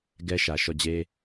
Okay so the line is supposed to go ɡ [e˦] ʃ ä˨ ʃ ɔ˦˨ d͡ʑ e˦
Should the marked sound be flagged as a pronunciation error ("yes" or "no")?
yes